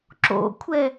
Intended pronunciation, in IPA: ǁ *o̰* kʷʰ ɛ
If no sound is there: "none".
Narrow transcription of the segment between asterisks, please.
o̰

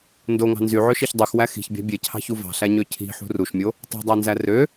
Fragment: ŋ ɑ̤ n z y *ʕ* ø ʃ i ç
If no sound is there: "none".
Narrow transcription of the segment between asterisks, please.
ʕ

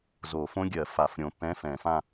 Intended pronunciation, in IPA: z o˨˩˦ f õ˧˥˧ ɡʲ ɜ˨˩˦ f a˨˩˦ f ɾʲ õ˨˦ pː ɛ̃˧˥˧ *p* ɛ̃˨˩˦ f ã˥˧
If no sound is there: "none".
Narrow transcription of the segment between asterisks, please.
f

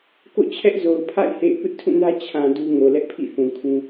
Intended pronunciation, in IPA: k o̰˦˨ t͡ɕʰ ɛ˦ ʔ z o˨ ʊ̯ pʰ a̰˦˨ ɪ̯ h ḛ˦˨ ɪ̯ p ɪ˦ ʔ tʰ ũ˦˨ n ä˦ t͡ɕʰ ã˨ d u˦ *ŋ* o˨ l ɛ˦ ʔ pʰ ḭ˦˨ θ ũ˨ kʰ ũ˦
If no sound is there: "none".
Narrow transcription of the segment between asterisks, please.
ŋ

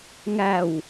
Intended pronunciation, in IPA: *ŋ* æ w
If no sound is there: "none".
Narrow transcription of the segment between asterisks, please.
ŋ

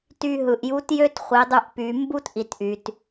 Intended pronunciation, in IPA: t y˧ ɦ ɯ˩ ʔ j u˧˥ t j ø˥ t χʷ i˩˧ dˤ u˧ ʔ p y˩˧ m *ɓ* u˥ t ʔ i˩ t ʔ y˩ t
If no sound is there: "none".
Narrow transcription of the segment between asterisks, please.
b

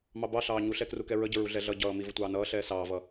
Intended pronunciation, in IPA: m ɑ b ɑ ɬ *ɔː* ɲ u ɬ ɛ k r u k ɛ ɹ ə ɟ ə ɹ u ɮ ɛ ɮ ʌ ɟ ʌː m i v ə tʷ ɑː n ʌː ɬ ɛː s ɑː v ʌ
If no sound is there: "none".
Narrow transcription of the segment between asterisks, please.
ɑː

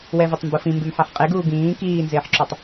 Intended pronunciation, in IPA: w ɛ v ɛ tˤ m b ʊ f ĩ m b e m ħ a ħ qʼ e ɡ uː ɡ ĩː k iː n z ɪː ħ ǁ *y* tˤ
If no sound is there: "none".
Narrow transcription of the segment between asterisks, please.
u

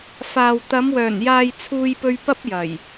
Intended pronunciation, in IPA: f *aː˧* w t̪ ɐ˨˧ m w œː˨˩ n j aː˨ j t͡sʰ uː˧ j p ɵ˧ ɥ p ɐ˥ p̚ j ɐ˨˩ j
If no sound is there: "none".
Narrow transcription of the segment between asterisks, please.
aː˨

